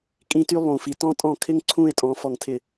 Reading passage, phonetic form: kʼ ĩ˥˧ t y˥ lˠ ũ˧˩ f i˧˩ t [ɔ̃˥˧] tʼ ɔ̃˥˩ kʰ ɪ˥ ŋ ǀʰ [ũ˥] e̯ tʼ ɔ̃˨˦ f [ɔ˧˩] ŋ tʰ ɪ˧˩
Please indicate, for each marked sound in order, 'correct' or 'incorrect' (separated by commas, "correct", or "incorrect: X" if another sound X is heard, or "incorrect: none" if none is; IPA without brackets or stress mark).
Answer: incorrect: ɔ̃˥, incorrect: ũ˥˧, correct